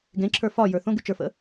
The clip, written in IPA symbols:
ɡ ẽ ǁʰ ə˞ f ɒ j ə˞ θ õ ɡ y t͡ʃ ə˞ f ə̰

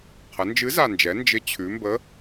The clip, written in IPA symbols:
qʰ ə˩˧ n d͡ʒ ɨ˨˥ z a˨˩ n d͡ʒ ɛ˩˧ n d͡ʒ ɪ˨˥ t͡ɕʰ ʉ˩˧ m b ə˨˥

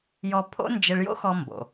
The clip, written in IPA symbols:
j ɔ˧ pʰ o̰˥ n d͡ʒ ɪ˧ ɭ j o̰˥ x ɔ˧ m b o̰˩

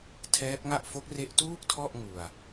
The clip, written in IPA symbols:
tʰ ɛː˦˥ p̚ ŋ a˥˩ ʔ f o˦˥ k̚ r e˦˥ ʔ t uː˥˩ k̚ tʰ ɔ˥˩ ʔ ŋ u˧ a̯

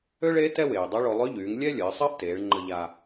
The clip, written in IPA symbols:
ø˥ ɭ e˧˥ t ɛ˥ w eː˩ dˤ o˧˥ ɭ o˧ lˠ ø˧˥ ʎ yː˩˧ ŋ lʲ ɛ˥ lʲ əː˩˧ sˤ əː˥ ʔ t eː˩˧ ɭ ŋ͡ǃ ə˧ ʎ a˧

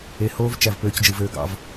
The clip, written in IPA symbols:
e˨ h oː˦ v t͡ʃ æ˨ v p øː˧ c d͡ʒ ɯ˨ v øː˧ ɡ ɑ̰˧ v

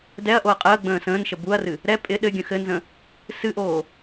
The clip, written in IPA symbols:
d ɛ ɐ̯ ʔ o ɐ̯ qʼ əː ɡ͡b ə̃ː s ə̃ː n ʃ ə b u ɐ̯ r ɨ | ɾ ɛ pʼ ɪ ɗ ɘ ɡʲ ə̃ x ɘ n z ə̃ | s ɨ ʔ oː

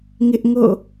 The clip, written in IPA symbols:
ŋ ɪ˦ ʔ ŋ o̰˦˨

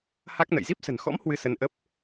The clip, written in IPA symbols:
h a˦˥ k̚ n ə̰˧˨ j z i˦˥ p̚ s ə̤˨˩ n x ɔ̰˧˥ m h w ɨ˧ s ə˧ n ʔ ə˦˥ p̚

